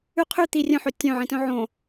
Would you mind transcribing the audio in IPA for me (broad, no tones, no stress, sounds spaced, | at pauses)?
ʉ qʰ ʉ t̪ i rʲ œ̃ ħ ɵ tʲ œ̃ ʕ ĩ t œ̃ ʕ õ